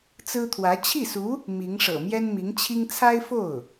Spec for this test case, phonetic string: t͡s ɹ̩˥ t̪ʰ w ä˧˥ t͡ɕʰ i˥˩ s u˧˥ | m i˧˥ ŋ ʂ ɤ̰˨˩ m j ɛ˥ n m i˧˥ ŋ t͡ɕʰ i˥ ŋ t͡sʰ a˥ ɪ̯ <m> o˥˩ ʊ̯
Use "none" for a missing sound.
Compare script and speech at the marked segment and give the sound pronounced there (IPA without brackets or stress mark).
f